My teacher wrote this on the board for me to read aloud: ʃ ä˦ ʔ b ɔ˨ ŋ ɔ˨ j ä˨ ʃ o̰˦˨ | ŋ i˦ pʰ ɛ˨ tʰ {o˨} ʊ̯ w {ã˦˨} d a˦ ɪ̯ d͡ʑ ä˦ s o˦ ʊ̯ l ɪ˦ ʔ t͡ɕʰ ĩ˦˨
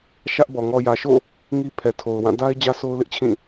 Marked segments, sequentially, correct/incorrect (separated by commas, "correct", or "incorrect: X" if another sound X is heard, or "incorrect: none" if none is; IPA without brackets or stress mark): correct, correct